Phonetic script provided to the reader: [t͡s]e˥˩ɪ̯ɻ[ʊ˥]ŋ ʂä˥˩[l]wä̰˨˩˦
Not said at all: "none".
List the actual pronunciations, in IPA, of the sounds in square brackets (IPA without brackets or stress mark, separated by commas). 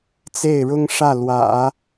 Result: t͡s, ʊ˥, l